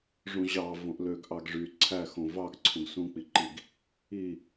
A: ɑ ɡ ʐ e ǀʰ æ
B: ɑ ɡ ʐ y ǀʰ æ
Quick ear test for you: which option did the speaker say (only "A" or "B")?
B